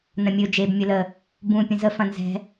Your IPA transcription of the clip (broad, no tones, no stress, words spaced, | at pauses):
nɐ̃mʲɵ d͡ʒeb mʲɵlə | bũ pʲə̃zə fɐ̃nzɛ̤